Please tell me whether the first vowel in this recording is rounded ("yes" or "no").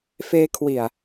no